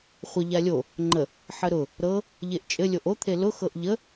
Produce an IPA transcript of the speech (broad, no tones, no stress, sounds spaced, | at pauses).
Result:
χʷ ə ʎ a lʲ o | ŋ͡ǃ ə | ħ ə ɾ ʊ | ɾ ɤ | ʎ e ʔ t͡ʃʼ ɘ lʲ o ʔ o t̪ʰ e l ʊ x ɤ ʔ ʎ ə